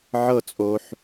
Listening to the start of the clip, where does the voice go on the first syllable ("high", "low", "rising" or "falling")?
falling